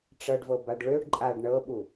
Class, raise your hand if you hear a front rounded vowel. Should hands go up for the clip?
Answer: yes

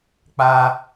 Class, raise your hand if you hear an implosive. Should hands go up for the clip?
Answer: no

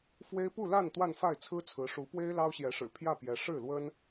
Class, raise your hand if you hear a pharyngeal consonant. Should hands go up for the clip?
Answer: no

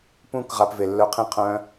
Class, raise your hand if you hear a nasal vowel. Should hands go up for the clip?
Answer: yes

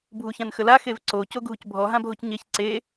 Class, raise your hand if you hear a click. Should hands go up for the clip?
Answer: yes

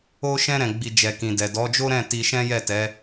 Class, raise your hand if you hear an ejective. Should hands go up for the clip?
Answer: no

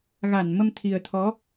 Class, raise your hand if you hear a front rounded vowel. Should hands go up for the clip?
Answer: no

